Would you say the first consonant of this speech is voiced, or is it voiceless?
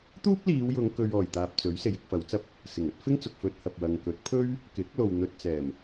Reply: voiceless